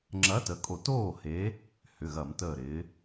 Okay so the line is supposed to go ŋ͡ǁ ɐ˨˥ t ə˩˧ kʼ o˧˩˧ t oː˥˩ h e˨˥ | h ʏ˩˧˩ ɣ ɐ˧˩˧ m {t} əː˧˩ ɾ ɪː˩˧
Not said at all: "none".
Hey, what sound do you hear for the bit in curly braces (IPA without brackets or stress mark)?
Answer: t